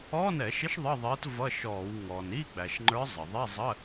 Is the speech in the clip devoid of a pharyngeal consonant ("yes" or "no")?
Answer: yes